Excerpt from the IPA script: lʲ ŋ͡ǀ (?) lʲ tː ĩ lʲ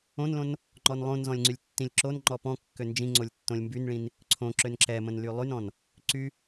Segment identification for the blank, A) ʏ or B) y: B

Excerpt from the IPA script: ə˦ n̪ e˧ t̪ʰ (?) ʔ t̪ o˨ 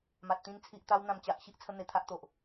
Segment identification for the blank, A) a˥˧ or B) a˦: B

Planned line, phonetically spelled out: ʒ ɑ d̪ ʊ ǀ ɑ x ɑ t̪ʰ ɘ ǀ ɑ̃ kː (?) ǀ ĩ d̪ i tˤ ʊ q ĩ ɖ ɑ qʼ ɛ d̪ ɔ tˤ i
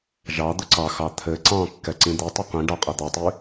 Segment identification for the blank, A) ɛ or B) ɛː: A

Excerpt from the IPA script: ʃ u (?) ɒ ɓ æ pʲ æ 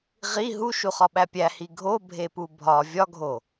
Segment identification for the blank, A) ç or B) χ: B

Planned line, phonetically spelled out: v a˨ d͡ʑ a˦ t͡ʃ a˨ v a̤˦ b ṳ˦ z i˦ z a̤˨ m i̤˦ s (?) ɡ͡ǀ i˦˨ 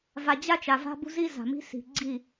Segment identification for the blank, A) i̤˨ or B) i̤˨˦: A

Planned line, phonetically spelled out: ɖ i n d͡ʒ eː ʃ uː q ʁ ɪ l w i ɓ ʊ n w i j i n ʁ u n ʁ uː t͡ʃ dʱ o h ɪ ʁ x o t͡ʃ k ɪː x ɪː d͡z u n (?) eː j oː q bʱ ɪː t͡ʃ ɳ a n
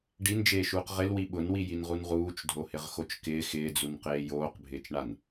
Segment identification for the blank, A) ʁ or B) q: B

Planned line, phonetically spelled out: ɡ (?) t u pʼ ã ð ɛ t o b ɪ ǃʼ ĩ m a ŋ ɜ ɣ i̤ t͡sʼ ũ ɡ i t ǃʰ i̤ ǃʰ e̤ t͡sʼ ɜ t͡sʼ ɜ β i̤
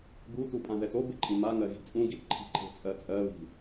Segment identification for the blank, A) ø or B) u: B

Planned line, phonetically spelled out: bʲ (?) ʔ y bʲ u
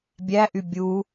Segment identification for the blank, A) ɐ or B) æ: B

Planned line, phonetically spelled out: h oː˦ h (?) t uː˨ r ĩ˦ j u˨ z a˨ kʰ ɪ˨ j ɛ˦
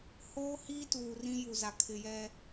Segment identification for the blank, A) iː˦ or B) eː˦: A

